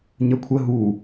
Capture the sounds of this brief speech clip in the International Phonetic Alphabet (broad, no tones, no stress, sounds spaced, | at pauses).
ɲ ə kʷʰ ə ɦ u